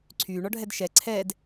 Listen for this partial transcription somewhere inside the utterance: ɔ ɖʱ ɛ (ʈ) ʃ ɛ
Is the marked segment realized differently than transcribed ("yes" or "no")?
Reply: yes